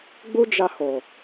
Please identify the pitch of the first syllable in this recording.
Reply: high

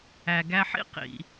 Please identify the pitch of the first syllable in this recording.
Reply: low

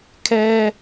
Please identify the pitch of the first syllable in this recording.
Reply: high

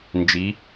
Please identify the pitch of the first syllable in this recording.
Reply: rising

